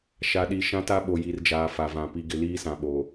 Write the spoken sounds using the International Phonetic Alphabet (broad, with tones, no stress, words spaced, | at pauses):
ʃa˨ɗi˨ ʃã˦ta˦ ɓo˨ji˨rd͡ʒaː˨ fa˨vã˨ pi˨ɡɪ˨ liː˦sã˨ɓoː˨